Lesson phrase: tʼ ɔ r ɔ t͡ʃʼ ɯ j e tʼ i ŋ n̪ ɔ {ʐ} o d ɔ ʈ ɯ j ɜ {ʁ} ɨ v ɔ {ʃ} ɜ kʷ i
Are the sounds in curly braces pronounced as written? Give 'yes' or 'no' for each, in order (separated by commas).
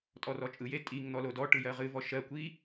no, yes, yes